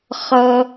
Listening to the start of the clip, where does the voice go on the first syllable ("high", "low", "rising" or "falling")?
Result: low